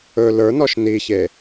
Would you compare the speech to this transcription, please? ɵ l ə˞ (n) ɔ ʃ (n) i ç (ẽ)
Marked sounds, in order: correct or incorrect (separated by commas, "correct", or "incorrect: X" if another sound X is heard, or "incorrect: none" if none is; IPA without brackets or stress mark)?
correct, correct, incorrect: e